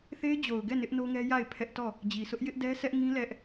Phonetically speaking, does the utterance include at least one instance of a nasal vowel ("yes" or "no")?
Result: yes